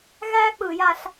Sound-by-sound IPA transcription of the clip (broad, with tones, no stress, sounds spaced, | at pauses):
ɣ æː˥ k͡p ɯː˧˩˧ j a˧ ɬ